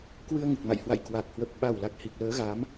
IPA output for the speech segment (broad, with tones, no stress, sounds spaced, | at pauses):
k w ɨ˧ ə̯ ŋ ɨ˨˩ k̚ m a̰˧˨ j h w a̰˧˨ j k w a˨˩ k̚ h w ə˨˩ p̚ ɓ a˨˩ w l a˨˩ k̚ h i˨˩ k̚ l əː˨˦ ɣ a˨˦ m